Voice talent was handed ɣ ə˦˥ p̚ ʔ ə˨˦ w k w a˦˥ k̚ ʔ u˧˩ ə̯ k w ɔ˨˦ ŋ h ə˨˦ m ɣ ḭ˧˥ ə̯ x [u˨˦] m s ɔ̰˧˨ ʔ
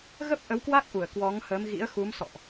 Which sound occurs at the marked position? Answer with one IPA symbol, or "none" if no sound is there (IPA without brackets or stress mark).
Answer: u˨˦